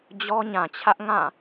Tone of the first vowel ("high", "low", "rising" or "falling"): high